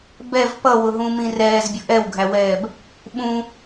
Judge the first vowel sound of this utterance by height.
mid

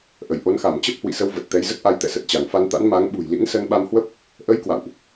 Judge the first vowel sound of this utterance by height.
mid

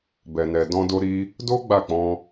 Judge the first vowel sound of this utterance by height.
mid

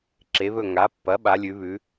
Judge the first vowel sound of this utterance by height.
mid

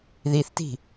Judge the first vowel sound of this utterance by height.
high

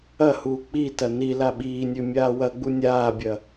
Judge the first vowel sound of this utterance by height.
low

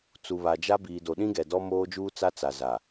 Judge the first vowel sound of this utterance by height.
high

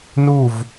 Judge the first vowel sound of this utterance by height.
high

